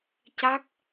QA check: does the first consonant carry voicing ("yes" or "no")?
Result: no